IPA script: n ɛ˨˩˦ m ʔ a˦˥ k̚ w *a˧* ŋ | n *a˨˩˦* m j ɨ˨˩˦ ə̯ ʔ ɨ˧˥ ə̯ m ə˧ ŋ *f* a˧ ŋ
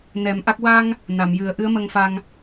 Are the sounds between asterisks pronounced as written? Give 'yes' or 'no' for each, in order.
yes, no, yes

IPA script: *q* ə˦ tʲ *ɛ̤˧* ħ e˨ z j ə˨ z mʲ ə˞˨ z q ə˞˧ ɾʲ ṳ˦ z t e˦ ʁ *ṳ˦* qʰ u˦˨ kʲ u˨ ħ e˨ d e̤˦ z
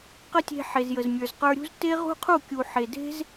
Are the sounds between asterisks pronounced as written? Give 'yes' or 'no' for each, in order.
yes, no, yes

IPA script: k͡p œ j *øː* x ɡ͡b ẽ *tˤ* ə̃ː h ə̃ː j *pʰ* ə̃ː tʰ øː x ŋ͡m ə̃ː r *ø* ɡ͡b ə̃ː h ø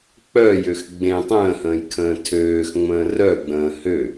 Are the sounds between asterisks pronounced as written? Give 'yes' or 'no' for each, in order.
no, yes, no, no

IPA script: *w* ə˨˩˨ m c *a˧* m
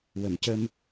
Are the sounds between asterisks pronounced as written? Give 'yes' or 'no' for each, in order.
yes, no

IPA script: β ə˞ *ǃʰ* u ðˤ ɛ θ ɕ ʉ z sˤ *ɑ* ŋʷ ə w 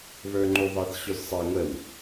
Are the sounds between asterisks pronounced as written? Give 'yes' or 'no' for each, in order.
no, yes

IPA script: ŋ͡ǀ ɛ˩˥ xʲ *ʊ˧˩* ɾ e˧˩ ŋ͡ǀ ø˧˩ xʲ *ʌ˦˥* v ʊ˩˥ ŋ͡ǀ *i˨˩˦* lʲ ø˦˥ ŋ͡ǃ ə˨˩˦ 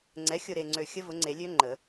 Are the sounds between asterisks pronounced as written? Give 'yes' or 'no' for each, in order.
yes, no, no

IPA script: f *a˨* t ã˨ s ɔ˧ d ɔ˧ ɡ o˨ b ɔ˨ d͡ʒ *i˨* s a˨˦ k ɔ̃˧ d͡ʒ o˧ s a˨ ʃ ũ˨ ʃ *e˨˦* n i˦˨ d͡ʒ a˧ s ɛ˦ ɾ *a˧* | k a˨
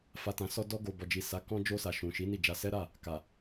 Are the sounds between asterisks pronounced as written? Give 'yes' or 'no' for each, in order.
yes, yes, no, no

